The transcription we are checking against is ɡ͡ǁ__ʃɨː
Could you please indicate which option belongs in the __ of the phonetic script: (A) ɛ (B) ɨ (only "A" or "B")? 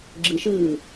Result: B